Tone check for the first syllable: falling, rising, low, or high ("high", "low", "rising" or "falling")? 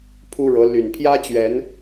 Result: high